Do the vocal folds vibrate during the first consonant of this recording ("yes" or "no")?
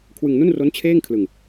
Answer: no